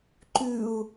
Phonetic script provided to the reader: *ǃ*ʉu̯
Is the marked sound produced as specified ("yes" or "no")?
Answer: yes